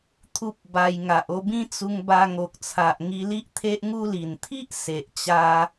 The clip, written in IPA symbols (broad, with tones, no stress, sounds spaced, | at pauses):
t̪ʰ u˦ p̚ b a˧ j ŋ a˨ ʔ o˧ b ĩ˦ t͡s u˧ ŋ b a˧ ŋ o˨ k̚ t͡sʰ a˨ ʔ ŋ i˧ l i˦ ʔ t̪ʰ e˦ ʔ ŋ u˦ l i˨˩ n t̪ʰ i˦ ʔ s e˨ ʔ t͡ɕ a˧